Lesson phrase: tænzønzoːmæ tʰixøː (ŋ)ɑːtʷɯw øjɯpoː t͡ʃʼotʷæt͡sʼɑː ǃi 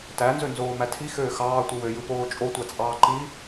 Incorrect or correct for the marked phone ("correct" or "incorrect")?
incorrect